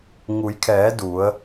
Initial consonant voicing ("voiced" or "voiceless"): voiced